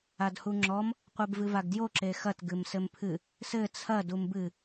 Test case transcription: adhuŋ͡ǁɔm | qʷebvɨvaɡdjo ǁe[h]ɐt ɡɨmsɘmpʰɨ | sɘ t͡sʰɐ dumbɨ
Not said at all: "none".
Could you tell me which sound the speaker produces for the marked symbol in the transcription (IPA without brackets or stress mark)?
x